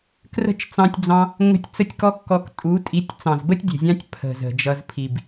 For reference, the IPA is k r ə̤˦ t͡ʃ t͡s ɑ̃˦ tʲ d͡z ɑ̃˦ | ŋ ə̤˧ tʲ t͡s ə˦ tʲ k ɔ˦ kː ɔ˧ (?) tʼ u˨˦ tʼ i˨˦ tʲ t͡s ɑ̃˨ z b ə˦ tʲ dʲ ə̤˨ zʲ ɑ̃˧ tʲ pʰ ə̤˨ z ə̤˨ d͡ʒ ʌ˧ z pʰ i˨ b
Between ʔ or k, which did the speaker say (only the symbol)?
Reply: k